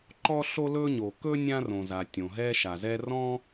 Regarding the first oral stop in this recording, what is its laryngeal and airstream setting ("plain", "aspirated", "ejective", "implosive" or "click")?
click